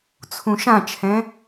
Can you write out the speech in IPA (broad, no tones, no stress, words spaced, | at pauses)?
t͡sʰũʃãt͡ʃʰɛ̃